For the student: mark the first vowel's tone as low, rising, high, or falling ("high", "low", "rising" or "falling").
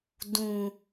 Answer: low